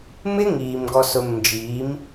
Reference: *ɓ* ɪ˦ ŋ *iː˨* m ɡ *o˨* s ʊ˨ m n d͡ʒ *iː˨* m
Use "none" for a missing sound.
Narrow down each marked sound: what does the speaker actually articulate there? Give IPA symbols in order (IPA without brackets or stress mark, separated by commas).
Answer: m, iː˨, ɔ˨, iː˨˦